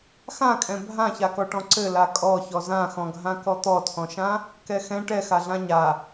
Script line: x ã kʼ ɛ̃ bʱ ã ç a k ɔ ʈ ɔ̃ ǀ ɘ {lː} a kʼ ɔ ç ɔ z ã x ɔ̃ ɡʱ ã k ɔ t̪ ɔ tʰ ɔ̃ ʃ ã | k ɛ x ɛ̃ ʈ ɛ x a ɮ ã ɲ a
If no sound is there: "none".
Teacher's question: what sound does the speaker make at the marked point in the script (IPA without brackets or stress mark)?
l